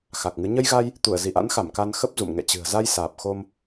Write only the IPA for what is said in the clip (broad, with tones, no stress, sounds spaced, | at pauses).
x a˨˩ k̚ ŋ ɨ˨˦ ɲ ə˧ j ɣ a˧ j | t̪ u˧˩ ə̯ z i˧˩ ʔ a̰˧˥ n x a˧˩ m k a˧ n x ə˦˥ p̚ z ṵ˧˨ m ŋ ɛ̰˧˨ t͡ɕ ɨ̤˨˩ ə̯ z a˧ j s aː˨˩ p̚ x o˧ m